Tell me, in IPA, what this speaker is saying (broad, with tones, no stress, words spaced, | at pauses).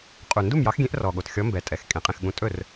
qʼu˨˩ ndu˥˩mjɑ˨˥xɡʲẽ˨˥ʔ rɔ˨˩ɠo˨˩t xʲɔ˨˥ mbɛ˨˩tʼɛ˨˩x kʼẽ˨˩qʼẽ˥˩xɠũ˨˥ tʼɵ˥˩r